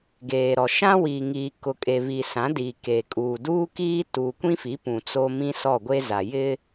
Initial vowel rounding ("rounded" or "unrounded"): unrounded